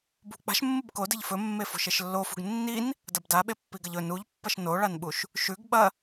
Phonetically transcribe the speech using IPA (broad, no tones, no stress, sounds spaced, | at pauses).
b ṳ k͡p a̤ ʃ mː ɨ b k o d ɨ ʎ f ɵ mː e f o̤ ʃ e ʃ lː o f ṳ ɡ nː i n | d ɐ b d a ɓ e pː i ɡ ɐ ʎ ɵ n u ʎ pː ɐ ʃ n o ɭ a n ɓ u ʃ | ʃ ʉ ɡ ɓ ɐ